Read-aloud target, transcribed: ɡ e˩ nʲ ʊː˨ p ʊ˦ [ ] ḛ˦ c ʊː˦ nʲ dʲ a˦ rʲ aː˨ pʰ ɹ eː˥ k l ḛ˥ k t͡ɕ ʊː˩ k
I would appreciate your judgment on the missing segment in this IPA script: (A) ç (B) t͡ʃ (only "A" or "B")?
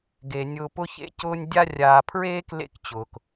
A